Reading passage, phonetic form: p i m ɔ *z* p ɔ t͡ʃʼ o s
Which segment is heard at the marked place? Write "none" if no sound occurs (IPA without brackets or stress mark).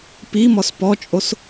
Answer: s